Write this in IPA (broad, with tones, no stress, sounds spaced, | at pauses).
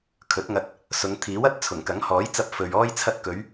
kʰ ɵ˨˥ t̚ ŋ ɐ˧ t̚ | s ʊ˨˧ ŋ t̪ʰ iː˨˥ w ɐ˨˥ t̚ t͡sʰ ʊ˨˩ ŋ k ɐ˨˥ ŋ h ɔː˨˥ j t͡s ɐ˧ p̚ f ɵ˨ ɥ ɔː˧ j t͡sʰ ɐ˧ t̚ k ɵ˨˧ ɥ